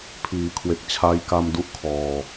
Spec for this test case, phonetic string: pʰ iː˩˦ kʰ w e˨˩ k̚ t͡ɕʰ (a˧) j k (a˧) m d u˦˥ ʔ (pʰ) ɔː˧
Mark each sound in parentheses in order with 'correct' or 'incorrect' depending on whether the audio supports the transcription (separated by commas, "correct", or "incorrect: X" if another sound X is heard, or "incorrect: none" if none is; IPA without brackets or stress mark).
incorrect: a˦˥, correct, incorrect: kʰ